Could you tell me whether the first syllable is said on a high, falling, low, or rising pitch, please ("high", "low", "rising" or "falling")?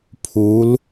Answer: rising